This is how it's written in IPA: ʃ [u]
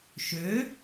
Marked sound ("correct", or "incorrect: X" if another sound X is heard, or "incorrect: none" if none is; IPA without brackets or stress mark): incorrect: ø